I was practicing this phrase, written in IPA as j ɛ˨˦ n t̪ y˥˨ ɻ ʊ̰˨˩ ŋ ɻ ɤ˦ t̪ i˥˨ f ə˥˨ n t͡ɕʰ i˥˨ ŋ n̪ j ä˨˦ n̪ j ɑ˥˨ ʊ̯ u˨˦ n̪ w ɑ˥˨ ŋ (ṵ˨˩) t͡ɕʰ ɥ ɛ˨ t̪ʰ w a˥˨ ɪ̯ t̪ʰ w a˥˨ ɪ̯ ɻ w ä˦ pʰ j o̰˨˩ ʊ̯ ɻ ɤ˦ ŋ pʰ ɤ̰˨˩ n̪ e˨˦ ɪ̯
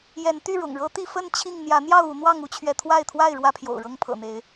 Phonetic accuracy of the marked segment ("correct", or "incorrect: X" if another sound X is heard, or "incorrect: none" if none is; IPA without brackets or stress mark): incorrect: u˦